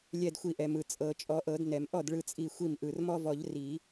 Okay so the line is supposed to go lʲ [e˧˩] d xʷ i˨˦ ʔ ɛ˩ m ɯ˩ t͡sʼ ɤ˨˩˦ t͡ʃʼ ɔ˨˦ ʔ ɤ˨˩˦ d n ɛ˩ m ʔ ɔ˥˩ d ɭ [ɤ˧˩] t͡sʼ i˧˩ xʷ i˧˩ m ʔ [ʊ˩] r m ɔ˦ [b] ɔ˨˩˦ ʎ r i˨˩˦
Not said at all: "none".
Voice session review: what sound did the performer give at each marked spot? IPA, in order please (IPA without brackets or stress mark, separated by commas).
ɛ˧˩, ɯ˧˩, ɯ˩, v